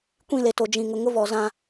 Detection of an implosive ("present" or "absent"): absent